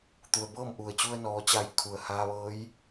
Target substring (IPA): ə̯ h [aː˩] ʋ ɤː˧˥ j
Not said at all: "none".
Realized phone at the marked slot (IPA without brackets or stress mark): aː˧